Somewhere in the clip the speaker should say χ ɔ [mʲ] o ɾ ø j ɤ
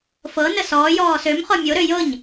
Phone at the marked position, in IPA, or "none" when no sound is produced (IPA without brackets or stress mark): mʲ